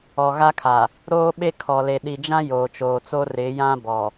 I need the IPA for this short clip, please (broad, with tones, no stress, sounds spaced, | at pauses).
ɔ˨ ɣ a˦ kʰ a˨ | ɾ oː˦ ɓ e˦ kʰ ɔ˨ l e˨ ɗ i˨ d͡ʒ ã˦ j oː˨ t͡ʃ oː˨ t͡s o˦ r ɪ˨˦ j ã˦ b ɔ˨